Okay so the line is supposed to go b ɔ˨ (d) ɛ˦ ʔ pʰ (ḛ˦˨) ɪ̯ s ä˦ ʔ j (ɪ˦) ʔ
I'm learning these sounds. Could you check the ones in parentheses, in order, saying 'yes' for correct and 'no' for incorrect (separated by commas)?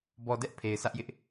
yes, no, yes